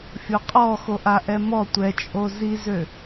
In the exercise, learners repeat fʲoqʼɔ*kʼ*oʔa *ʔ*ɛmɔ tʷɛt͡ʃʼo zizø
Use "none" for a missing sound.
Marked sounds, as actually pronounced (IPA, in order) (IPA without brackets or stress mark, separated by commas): x, ʔ